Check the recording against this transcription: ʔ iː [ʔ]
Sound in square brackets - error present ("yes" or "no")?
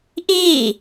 yes